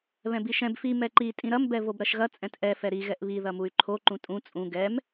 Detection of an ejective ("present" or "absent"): present